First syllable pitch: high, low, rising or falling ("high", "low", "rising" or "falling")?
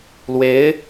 rising